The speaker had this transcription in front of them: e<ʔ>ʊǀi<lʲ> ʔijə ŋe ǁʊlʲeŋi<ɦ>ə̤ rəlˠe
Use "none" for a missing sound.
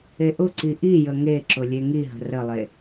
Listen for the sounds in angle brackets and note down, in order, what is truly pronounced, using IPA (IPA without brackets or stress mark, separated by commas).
ʔ, none, ɦ